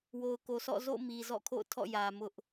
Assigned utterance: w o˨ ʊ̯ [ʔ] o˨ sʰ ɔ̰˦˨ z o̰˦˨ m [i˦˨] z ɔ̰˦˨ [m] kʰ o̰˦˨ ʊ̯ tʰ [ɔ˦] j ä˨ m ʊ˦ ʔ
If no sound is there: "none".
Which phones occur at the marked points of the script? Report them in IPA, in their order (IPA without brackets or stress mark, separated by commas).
k, i˨, none, ɔ̰˦˨